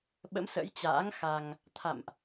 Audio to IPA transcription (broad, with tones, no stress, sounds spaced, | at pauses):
ɓ ə̰˧˥ m s ə̰˧˥ j t͡ɕ a̰ː˧˥ ŋ x a˧ ŋ | t̪ʰ a̰˧˨ m ʔ